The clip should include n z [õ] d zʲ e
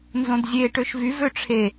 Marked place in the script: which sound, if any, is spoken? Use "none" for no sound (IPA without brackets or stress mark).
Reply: õ